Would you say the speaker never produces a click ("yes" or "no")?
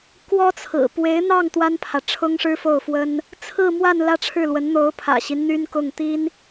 yes